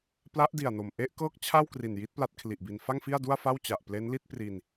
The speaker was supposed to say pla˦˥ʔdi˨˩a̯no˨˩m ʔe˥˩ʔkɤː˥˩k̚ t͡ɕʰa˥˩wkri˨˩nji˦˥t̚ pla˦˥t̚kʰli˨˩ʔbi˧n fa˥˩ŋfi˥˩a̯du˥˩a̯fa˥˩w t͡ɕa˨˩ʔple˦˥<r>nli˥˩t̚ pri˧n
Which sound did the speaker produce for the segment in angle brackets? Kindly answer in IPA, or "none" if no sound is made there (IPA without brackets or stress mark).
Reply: none